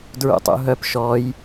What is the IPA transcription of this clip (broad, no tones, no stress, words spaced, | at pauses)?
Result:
dɹṵtˤṵɦœp ʃɔj